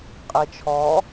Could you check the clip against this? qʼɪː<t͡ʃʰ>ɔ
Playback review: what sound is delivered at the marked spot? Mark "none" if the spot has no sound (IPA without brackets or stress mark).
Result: t͡ʃʰ